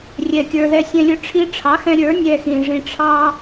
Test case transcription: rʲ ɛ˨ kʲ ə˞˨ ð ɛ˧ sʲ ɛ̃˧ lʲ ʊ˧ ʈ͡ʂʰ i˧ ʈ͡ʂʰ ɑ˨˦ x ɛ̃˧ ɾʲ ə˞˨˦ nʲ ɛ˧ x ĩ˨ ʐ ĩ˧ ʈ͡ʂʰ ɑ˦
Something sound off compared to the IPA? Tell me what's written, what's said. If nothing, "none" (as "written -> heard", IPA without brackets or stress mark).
none